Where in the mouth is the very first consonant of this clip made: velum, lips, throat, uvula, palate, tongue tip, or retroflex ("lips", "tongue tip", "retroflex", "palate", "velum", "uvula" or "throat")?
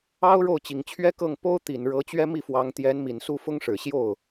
retroflex